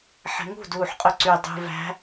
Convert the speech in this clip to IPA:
ħ ɛ̤ ŋ ṳ d uː ħ qʼ ɵ ǀ y dˤ ṳ v æ̤

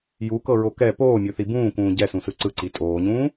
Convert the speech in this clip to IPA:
j u k ɤ ɹ o k ɛ p oː mʲ o θ i b ũː k ũː ɟ ɛ s ũ s ɯ ǀ ɯ ǀ i tʼ oː ɲ ũː

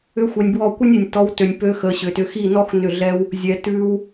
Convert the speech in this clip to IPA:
ʏ˦ xʷ ɛ˧ nʲ b w ɔ˦˨ kʷ ɨ˦ nʲ ʉ˨ nʲ t ɔ˧ w t ø˧ nʲ p ø˦ x ə˧ ɕ ʏ˨ t ʏ˧ x i˦˨ n ɔ˦ x n ʏ˦˨ ɮ ɛ˦ w | zʲ ɛ˧ t ʉ˦ w

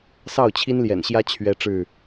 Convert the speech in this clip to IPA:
s ɑ˥˨ ʊ̯ t͡ɕʰ i˦ n l j ɛ̰˨˩ n ɕ j ä˦ t͡ɕʰ ɥ ɛ˦ ʈ͡ʂ ɻ̩˥˨

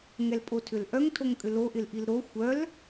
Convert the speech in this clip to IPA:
ŋ ɛ l pʼ o tʰ ʏ l ʔ œ ŋ tʰ o ŋ kʼ ʏ l o ʔ ɪ l ʔ i l ɾ o xʷ œ l

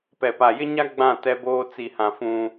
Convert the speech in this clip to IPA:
p ɛ˨ p a˨ j ɪ˦ ɲ a˦ ɡ͡b ã˦˨ t ɛ˦ b oː˦ t͡s i˨ h ã˨ f ũ˦

